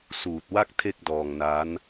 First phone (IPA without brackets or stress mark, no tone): s